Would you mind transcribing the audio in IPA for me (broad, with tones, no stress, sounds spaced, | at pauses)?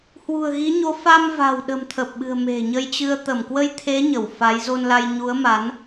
h w ṳ˨˩ ə̯ ɣ i˨˦ ɲ o˨˦ f a˧ m v a̤˨˩ w ɗ ə̤˨˩ m t̪ʰ ə˨˩ p̚ ɓ ɨ̤˨˩ ə̯ m e̤˨˩ ɲ ə˧ j t͡ɕ ɨ˧ ə̯ t̪ ə˧˩ m k w ə˧ j t̪ʰ e˨˦ ɲ ə˧˩ w f a˨˦ j z o˧ n l a˧ j ɲ u˨˦ ə̯ m a˨˦ n